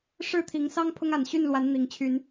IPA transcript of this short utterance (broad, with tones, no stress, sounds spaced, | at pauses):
ʂ ɻ̩˥˨ t̪ʰ i˨˦ ŋ s ɑ˦ ŋ pʰ ʊ˦ ŋ a˨˩ n ɕ y˥˨ n l w a˨˦ n n̪ i˨˩ ŋ t͡ɕʰ y˨˦ n